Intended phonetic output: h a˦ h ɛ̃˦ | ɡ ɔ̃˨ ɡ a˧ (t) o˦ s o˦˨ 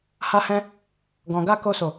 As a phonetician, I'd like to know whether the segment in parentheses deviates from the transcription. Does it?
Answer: yes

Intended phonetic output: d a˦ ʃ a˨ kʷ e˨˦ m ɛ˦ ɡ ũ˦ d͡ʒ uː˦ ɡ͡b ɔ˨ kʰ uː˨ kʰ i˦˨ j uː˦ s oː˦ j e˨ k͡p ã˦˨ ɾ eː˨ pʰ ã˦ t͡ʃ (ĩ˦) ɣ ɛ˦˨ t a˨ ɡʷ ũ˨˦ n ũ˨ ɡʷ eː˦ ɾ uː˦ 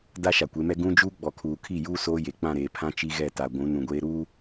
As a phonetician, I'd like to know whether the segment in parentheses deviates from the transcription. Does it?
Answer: yes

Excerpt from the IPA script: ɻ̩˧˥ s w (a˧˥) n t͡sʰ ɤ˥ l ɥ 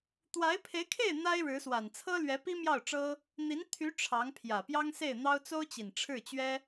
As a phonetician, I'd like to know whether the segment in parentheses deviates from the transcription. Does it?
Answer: yes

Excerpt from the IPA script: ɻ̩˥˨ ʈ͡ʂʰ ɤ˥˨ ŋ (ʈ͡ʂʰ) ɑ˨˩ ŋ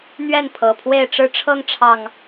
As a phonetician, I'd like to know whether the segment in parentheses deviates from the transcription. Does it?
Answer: no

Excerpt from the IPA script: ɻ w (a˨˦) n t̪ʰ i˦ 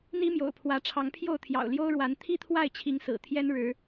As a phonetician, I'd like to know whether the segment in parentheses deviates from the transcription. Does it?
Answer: no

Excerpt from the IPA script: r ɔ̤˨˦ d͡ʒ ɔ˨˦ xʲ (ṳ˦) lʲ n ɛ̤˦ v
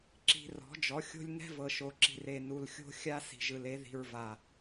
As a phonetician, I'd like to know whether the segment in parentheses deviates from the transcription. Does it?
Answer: yes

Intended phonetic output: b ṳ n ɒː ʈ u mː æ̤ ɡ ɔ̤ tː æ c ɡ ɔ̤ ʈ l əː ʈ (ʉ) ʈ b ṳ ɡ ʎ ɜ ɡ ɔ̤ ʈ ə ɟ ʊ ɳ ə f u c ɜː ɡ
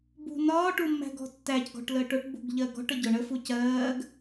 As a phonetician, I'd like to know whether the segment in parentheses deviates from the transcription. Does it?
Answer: yes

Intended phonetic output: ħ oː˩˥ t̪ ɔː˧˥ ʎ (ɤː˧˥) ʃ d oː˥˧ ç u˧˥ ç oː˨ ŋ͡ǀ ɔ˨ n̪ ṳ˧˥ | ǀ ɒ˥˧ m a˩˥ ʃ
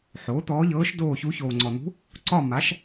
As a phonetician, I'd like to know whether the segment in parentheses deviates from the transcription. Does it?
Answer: no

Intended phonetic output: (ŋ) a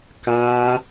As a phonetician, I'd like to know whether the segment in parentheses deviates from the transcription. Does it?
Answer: yes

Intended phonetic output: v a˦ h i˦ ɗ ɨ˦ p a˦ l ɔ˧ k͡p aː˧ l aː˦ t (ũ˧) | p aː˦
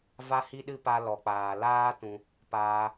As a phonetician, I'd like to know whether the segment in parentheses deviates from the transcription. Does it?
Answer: no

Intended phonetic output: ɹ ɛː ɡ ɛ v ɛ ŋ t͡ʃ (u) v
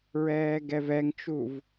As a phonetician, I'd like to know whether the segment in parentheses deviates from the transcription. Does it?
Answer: no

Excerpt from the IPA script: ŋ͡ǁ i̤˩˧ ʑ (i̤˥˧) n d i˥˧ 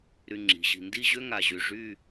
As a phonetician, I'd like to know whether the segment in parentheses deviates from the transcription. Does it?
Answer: yes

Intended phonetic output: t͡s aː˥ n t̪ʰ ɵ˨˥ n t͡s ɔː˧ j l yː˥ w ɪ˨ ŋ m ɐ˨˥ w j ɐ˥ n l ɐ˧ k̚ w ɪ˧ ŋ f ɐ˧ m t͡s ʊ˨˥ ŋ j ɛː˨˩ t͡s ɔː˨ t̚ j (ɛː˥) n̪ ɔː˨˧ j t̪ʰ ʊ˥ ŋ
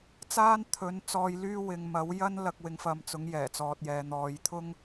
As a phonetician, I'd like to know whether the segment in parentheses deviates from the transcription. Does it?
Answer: yes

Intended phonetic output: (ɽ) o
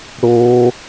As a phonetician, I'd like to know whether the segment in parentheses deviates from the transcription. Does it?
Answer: no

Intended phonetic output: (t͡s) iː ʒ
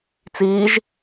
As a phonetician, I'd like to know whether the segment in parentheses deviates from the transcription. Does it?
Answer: no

